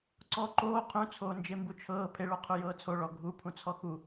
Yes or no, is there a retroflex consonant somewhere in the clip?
yes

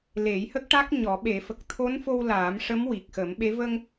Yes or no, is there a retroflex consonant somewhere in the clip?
yes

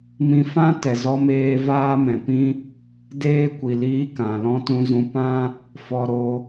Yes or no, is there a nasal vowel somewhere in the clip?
yes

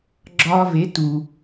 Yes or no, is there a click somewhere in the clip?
yes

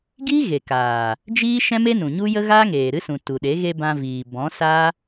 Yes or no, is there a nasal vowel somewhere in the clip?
yes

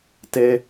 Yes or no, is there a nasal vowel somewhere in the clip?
no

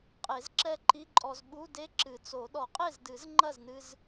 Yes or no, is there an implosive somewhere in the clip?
yes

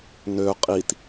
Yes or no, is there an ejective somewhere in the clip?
yes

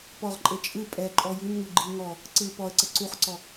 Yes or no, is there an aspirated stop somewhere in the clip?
no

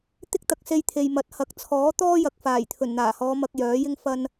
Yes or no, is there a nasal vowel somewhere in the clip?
no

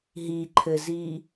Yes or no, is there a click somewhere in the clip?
yes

